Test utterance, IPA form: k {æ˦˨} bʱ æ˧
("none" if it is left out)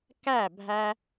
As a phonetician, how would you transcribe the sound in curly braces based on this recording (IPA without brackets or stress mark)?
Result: æ˦˨